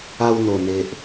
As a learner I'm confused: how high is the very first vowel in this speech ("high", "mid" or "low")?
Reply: low